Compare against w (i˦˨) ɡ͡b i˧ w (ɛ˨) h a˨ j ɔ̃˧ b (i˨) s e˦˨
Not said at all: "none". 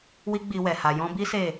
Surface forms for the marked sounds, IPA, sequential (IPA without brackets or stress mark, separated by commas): i˦, ɛ˨, i˦